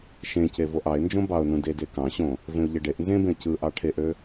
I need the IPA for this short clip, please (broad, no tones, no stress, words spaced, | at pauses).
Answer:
ʃẽce voʔɑɪ̯nd͡ʒõ bɑʊ̯nũ dede kɑ̃ɕõ | vẽʊ̯ʎeɖeʔ nzẽbẽə̯ cɯʔɑ ʈʰeʔø